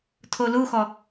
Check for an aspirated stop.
present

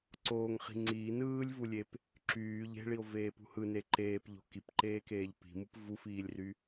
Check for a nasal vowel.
absent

